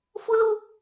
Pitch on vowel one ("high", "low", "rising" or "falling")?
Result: high